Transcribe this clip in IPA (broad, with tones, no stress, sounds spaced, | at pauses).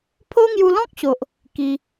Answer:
pʰ o˦ ŋ j u˧ l ɔ̃˦ k̚ ɕ o˨ ʔ | k i˧